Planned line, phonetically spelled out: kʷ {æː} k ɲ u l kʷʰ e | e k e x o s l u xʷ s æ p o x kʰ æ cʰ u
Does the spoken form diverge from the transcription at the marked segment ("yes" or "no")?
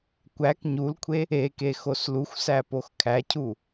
yes